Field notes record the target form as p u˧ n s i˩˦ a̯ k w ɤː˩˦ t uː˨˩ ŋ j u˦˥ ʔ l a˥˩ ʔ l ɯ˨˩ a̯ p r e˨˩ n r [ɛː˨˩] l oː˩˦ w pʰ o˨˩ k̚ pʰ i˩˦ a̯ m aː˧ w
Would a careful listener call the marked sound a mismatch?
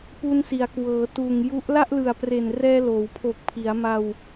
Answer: yes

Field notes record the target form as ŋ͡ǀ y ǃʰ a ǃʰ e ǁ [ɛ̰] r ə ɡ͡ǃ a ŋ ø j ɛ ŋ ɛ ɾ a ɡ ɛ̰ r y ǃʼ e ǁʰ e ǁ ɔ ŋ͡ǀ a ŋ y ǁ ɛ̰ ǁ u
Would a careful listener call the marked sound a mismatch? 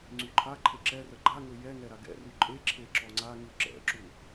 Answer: yes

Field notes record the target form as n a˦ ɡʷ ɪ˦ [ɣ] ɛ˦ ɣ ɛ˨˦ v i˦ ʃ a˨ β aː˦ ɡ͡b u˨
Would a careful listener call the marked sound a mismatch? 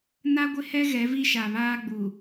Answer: yes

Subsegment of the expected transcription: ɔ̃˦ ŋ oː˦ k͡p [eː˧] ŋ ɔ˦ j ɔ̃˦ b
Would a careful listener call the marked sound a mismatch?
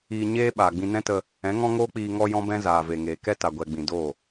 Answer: yes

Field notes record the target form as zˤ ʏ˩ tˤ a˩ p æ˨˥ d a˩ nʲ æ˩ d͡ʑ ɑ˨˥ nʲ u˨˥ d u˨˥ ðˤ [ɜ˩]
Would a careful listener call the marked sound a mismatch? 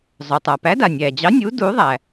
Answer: yes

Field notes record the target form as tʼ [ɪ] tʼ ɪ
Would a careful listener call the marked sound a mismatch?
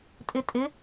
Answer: no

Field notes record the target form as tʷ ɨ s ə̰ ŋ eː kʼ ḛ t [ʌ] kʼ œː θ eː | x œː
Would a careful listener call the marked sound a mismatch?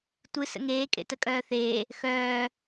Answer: yes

